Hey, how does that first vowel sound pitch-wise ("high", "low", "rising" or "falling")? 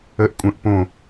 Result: high